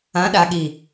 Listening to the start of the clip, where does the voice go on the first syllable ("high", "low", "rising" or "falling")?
rising